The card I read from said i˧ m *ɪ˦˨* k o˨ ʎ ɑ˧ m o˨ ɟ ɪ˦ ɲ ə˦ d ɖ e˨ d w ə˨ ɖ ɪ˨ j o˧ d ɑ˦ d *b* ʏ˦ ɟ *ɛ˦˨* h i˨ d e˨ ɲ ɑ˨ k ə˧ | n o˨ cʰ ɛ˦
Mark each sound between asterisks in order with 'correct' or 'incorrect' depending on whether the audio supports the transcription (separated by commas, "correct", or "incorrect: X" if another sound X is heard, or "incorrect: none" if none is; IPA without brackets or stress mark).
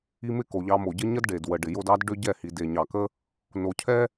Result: correct, incorrect: ɖ, correct